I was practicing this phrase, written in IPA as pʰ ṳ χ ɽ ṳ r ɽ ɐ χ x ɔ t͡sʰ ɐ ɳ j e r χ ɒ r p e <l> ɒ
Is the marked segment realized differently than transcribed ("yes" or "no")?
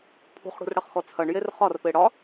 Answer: yes